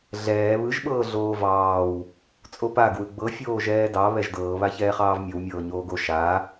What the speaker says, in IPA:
ɮɛː βɯʒɓɤː ɮoːvɑːw | t͡sʼopa ɡwɯɡ͡bɤfʲoː ʒɛːdɑ βɛʒdɤːβa çɛːχɑːvmʲowmʲɤː ɲoːɡo ʃa

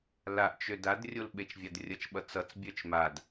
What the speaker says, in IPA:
laʔt͡ʃø dad rʲolɓet͡ʃvʲadrʲʌt͡ʃ ɓʌt͡sʌt͡s bʲœt͡ʃmad

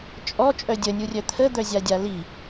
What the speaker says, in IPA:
t͡ʃʼɔ t͡ʃʼœdʲə nʲurʲœt̪ʰə d̪œzʲadʲali

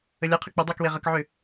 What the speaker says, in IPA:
əlʲaqʰə k͡pudˤakwe ʁəkʕʏ

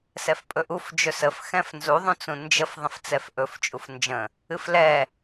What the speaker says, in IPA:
sɛfpʼɵʔuf d͡ʒɵsəf xɛ̃fnzu ðˤũt͡sũnd͡ʒəf ðˤə̃ft͡sɛfʔɵf t͡ʃʼufnd͡ʒə̃ | ɨflɛ

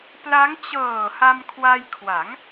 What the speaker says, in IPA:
pla˦˥ŋ t͡ɕɤː˨˩ ha˧mkʰwa˧jkʰwa˩˦ŋ

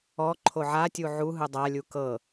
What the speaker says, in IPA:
ɔ ǃʰoʕatʲu ʕu ɦɯdˤalʲu kɤ

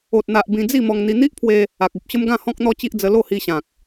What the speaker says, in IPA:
o˨t̚n̪a˨ʔ bĩ˧d͡zi˥˧mɔ˧ŋ n̪i˧ n̪i˦ʔpʰwe˧ | a˨k̚u˨p̚ɕə˦m ɡã˥˧ hɔ̃˦k̚n̪ɔ˦t͡ɕi˦ʔd͡zə˧ lo˥˧hi˧ɕã˨k̚

